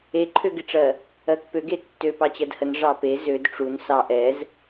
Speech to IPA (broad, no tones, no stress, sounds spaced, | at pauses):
e ǃʰ ø ɡ ɪ ʈ͡ʂ ɜ | ɜ k p ø ɡ e tː ø p ɑ t͡ɕ ɜ d h ə n ʐ ɑ p e z ø d ʈ͡ʂ u n s ɑ ʔ ɛ z